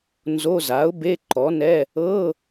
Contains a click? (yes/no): yes